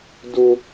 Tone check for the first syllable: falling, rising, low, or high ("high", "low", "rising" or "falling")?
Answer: high